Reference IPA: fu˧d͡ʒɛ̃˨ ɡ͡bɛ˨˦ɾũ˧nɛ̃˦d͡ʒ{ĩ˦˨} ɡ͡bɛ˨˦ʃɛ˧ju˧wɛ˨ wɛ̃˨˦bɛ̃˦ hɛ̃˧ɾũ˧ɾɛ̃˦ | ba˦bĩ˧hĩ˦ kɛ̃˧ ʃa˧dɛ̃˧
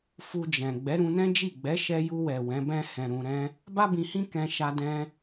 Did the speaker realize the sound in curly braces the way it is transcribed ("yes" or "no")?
no